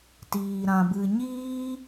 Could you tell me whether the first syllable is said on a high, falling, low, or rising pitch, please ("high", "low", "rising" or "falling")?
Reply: low